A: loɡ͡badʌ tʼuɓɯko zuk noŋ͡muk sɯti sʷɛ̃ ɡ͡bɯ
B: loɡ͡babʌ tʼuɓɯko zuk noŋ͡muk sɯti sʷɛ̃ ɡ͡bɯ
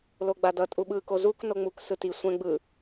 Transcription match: A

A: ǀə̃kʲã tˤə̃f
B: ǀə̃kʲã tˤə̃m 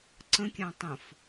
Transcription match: A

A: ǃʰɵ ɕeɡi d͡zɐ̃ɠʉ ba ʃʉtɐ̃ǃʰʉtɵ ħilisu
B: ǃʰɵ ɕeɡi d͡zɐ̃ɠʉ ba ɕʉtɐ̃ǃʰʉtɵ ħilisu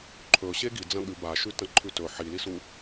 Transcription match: A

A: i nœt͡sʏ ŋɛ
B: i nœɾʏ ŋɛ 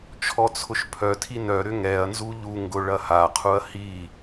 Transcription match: B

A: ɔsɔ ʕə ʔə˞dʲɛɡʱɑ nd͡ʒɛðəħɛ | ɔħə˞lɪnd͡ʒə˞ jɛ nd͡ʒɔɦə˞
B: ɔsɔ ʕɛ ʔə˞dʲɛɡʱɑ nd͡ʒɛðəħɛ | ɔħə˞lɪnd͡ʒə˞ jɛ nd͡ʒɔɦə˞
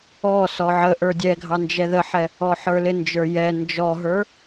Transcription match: A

